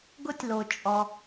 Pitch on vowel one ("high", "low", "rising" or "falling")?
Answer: high